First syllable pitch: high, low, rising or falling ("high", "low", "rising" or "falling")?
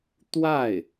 falling